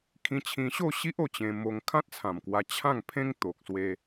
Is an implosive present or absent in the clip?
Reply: absent